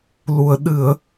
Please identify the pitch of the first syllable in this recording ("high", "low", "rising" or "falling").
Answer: low